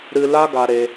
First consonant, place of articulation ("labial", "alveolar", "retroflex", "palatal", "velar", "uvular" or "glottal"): alveolar